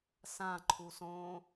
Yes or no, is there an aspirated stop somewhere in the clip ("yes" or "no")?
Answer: yes